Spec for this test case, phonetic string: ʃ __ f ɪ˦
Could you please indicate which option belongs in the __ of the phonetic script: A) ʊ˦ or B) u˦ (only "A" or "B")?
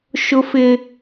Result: A